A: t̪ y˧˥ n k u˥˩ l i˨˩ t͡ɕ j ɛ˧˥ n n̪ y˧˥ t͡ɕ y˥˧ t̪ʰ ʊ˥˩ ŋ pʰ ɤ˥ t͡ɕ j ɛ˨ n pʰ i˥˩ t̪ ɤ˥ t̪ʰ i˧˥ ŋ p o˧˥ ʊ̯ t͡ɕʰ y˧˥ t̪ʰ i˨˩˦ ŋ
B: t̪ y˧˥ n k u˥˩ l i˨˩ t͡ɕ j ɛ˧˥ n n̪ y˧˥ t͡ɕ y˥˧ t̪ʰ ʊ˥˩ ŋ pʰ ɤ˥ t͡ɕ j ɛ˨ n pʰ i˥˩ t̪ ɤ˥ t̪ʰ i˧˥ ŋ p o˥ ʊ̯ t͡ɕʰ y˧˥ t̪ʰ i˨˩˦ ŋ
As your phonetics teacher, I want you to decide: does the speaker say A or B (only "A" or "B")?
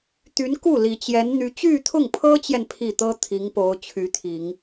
A